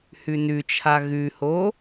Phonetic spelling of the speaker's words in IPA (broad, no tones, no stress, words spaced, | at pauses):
hʉnʉt͡ʃʰa ɣʉho